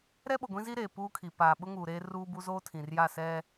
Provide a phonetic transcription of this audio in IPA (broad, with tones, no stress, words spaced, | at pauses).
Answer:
ɾɛ˦ɓo˨ɡʷĩ˦zi˦ ɾeː˨puː˦kʰi˨ paː˨ɓʊ˦ ŋuː˨ɾeː˦ ruː˦bu˦ zoː˦tʰĩ˨rja˦˨sɛ˦